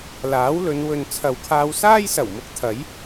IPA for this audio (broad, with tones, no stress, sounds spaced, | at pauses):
l aː˨˥ w l ɵ˨˧ n w ɵ˨ n t͡sʰ ɐ˨ w kʰ aː˧ w s aː˥ j s ɐ˨˩ w m ʊ˨˥ k̚ t̪ʰ ɐ˨˥ j